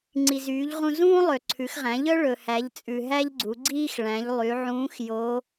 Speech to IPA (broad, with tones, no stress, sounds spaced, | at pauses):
ŋ͡ǀ i˩ z yː˩˧ ʎ ʁ ũ˧ z ũː˥ lˠ ø˩ ǀʰ ʉ˩˧ x ʁ æ̃˩˧ ʎ œ˥ ɭ ɵ˩ h æ˩˧ ʎ t͡sʼ ʉ˩ ɦ æ˥ ʎ ɡ͡ǀ u˩˧ ɡ͡ǀ iː˥ x ɭ æ̃˩˧ ʎ lˠ y˩˧ ʕ ũː˧˥ x j o˧˥